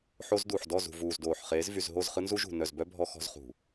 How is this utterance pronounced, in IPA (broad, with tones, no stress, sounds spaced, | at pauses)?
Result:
ħ o˦ z d u˨ ħ d ɔ˦˨ z ṳ˨ v uː˨ z d oː˨ ħ χ eː˨˦ z v y˨ z ɦ o˦˨ z χ ɯ˦ n z u˦ ʒ ṳ˨ n œ˨ z b œ˦ bʱ ɔ˦ x ɔ̤˦ z χ ṳ˨